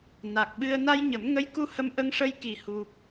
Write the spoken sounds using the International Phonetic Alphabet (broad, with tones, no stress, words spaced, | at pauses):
na˨˩k̚ɓɨ˧ə̯ na˧j ɲə˨˩˦mŋə˧˥jku˧ hə˧mʔə˧ŋʂə˧j ki˨˩hu˨˩p̚